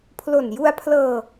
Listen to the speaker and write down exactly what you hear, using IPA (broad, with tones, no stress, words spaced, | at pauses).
pʰlo˨˩nju˧a̯pʰlɤː˧